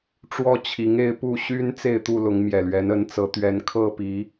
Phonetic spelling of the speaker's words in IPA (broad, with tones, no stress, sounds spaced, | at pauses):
ʈ͡ʂ w ɔ˦ t͡ɕʰ i˨˦ ŋ e˦ ɪ̯ p u˥˨ ɕ y˦ n t͡s e˥˨ ɪ̯ t̪ u˥˨ l ʊ˨˦ ŋ m j ɛ˨˩ l ɥ ɛ˨˦ n ə˨˦ n t͡s ɤ˨˦ t̪ ɥ ɛ˨˦ n kʰ ɤ˥˨ p i˨˦